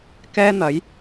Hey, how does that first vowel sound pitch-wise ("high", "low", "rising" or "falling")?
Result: high